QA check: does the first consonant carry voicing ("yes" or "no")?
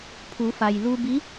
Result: no